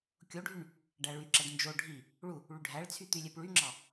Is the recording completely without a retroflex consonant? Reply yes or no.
no